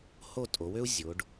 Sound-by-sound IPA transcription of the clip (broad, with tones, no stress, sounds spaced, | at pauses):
h o˥˧ tʼ o˩˧ w ø˥ u̯ zʲ o˩˧ ɖ